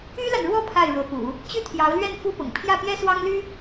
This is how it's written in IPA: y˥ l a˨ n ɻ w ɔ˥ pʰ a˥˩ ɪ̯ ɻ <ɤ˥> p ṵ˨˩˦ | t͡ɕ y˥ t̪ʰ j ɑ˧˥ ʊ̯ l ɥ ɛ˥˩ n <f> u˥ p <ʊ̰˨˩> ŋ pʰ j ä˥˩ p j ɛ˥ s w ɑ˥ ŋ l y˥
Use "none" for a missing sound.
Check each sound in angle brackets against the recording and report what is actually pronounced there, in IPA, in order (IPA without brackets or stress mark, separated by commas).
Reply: ɤ˧˥, f, ʊ̰˨˩